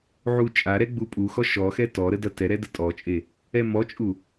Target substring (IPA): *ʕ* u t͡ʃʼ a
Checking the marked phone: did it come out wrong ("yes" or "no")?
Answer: no